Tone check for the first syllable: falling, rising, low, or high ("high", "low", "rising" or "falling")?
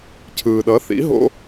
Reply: low